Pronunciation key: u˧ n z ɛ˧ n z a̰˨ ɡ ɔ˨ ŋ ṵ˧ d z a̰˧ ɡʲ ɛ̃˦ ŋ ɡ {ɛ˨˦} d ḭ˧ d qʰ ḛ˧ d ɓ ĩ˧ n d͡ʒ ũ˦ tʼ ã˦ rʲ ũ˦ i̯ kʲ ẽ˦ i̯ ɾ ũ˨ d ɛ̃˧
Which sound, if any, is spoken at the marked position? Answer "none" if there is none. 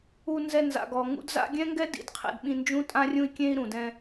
ɛ˦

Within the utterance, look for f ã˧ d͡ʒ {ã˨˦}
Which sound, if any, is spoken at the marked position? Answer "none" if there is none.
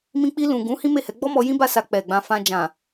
ã˨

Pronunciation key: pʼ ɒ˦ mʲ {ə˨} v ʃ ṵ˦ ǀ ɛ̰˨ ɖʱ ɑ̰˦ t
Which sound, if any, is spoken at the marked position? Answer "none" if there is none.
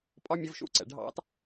ə˧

